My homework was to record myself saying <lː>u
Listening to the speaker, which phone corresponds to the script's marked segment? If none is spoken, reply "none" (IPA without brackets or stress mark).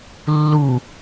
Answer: lː